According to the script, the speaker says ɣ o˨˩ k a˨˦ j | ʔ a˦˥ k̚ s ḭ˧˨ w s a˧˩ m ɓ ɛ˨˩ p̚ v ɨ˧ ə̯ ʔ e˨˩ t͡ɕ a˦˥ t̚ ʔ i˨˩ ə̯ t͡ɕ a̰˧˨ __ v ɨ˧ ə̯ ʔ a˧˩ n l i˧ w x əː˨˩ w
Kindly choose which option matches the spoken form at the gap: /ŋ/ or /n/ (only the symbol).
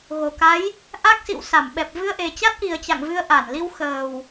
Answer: ŋ